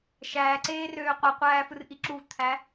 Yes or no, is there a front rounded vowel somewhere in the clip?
yes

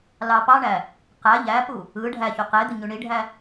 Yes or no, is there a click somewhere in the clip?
no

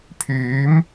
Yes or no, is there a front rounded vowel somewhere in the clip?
yes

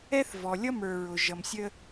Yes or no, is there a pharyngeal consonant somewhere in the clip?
no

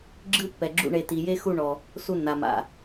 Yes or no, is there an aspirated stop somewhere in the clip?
no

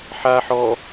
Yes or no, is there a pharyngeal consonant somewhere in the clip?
yes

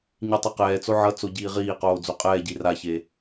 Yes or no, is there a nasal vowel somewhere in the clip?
no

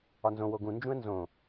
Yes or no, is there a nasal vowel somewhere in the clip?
yes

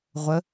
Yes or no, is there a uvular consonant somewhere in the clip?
yes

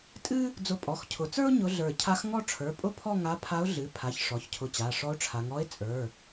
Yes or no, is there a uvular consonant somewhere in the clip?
no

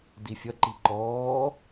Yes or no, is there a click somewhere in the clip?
yes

